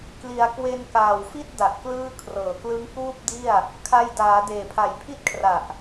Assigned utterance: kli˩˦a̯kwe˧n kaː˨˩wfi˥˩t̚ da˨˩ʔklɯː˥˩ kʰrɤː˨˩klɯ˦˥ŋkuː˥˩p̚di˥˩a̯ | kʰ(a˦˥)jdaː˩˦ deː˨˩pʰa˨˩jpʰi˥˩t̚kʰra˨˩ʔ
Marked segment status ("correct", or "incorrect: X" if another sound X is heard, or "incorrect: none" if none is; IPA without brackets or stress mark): incorrect: a˧